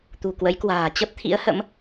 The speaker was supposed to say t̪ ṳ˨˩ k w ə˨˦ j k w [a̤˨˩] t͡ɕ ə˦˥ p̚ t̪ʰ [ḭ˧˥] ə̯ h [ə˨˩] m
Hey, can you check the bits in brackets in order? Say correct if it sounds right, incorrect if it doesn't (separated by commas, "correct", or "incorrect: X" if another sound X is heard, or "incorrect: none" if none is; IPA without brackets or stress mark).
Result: incorrect: a̤ː˨˩, correct, incorrect: ə̰˧˥